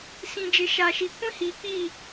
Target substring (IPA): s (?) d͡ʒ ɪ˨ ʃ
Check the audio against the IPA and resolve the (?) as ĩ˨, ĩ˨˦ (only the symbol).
ĩ˨